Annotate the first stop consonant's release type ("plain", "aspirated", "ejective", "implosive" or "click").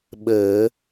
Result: implosive